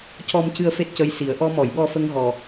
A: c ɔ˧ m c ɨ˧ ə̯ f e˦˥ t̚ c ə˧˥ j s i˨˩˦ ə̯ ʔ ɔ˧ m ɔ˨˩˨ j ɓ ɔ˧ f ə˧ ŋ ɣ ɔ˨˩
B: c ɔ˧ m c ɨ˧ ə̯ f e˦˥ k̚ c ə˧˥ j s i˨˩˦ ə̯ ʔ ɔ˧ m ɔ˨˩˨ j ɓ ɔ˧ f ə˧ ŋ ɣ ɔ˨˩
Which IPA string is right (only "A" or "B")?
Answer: A